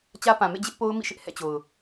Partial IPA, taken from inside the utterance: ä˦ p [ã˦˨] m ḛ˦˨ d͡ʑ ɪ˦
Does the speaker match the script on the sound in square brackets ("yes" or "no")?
no